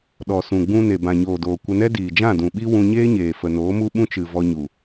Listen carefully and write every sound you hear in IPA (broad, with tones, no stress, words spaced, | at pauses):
ɗɔ˨ sũ˨ ɡ͡bũ˧ ne˨bã˨ɲoː˨doː˨ kʷə˧nɛ˦ diː˨d͡ʒã˦˨dũ˨ɓi˦ wũ˧ɲeː˦ɲeː˨ fə˨noː˨˦mu˦ ɓũ˦t͡ʃɨ˨ vɔ˧ɲu˨